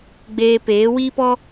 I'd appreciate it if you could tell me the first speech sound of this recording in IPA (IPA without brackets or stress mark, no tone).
ɡ͡b